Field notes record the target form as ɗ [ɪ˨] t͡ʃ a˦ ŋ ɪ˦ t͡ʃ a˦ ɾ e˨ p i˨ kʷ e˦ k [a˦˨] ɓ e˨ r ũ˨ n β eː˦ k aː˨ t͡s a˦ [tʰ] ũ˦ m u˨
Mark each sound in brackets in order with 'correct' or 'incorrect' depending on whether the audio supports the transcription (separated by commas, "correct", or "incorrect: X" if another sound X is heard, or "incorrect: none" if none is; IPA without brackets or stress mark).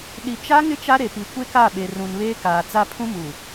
incorrect: i˨, correct, incorrect: pʰ